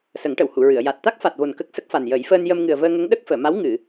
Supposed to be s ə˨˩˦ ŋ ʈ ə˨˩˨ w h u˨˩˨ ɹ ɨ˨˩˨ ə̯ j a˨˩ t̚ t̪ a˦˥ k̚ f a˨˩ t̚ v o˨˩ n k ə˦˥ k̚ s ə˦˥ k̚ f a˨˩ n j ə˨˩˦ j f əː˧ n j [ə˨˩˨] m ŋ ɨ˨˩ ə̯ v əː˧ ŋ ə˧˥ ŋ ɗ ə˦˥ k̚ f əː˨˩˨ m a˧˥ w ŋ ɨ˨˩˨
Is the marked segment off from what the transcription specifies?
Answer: yes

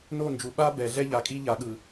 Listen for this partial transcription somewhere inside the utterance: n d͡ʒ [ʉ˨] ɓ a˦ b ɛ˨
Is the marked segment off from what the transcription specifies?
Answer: yes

